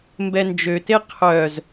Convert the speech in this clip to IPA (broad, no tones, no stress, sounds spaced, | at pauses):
m b ɛ n d͡ʒ ø t e qʰ œ z